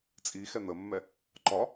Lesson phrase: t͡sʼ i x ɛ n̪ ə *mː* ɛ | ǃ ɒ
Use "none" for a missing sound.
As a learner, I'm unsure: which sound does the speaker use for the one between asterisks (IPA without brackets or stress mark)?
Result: mː